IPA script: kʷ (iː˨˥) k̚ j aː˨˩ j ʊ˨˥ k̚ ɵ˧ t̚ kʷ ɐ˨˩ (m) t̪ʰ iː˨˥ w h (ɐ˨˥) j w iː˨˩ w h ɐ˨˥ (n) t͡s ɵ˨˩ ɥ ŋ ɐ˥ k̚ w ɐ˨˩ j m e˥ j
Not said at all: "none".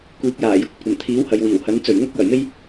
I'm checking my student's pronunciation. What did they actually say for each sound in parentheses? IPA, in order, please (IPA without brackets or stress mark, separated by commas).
iː˨˥, m, ɐ˨, n